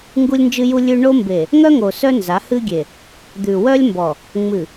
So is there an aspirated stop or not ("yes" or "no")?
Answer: no